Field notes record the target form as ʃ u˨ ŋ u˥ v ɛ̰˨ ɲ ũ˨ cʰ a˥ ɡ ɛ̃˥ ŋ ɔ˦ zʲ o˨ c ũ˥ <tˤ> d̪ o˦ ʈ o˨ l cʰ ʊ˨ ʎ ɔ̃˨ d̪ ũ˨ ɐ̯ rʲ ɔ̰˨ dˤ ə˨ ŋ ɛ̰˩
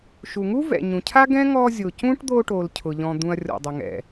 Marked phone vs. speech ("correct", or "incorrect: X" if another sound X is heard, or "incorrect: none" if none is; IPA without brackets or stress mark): incorrect: ʈ